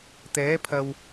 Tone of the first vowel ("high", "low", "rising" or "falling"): rising